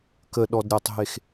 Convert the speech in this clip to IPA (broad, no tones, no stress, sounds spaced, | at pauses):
k ə ɗ ɔ d ɾʲ a tˤ ɦ e x